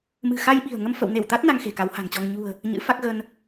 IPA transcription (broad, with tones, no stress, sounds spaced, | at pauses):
m ɨ̤˨˩ x a˧ j ɓ i̤˨˩ ə̯ ŋ ə˧ m f ə̰˧˨ w n e˧˩ w t̪ a˦˥ t̚ n a˧ ŋ x e̤˨˩ k a˨˦ w h a̤˨˩ ŋ t͡ɕ ɔ˧ ŋ ɲ ṳ˨˩ ə̯ | ɲ ɨ̰˧˥ f a˦˥ k̚ ɣ ə˧ n